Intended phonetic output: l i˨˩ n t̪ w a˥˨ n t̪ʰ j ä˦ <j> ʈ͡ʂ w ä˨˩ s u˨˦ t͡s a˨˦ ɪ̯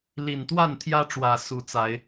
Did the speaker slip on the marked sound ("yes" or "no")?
yes